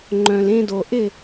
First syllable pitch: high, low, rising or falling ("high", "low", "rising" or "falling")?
low